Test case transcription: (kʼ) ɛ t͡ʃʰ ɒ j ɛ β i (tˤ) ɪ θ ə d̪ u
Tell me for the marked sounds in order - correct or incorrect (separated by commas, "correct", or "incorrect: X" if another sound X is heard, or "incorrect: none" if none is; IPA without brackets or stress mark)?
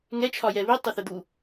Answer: incorrect: ŋ, correct